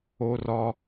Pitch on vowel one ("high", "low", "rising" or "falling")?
high